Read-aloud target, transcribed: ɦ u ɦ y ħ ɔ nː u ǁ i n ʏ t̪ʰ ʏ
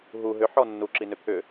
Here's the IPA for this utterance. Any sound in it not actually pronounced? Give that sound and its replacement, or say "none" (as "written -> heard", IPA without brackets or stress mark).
y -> ʏ